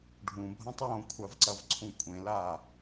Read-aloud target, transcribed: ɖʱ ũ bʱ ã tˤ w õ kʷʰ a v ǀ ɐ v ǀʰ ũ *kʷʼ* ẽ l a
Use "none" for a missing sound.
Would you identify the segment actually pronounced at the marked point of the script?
kʷʼ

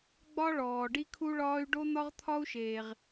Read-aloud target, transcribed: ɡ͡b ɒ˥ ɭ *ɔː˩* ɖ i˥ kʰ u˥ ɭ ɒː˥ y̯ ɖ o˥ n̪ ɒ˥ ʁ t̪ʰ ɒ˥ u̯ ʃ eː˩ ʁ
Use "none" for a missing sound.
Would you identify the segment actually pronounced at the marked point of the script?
ɔː˩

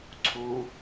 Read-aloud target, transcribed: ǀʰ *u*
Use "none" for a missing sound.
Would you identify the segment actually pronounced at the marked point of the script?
u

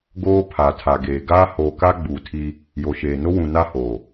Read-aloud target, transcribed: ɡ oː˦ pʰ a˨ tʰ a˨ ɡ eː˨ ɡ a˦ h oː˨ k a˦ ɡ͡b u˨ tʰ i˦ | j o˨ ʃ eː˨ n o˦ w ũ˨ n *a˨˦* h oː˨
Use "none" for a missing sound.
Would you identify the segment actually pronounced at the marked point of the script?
a˦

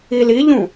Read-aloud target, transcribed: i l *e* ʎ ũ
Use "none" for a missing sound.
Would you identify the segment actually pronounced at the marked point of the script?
i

